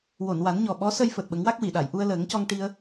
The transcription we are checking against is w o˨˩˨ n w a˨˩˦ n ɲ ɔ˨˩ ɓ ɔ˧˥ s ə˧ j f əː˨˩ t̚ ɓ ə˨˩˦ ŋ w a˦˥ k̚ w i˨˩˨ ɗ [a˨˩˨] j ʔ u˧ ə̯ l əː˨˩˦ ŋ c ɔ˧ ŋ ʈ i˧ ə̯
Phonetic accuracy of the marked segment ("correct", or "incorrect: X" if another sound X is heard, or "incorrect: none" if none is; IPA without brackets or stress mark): correct